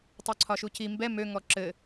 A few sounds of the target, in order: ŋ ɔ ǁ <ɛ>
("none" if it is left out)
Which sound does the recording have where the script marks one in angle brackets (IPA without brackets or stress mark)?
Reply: ɘ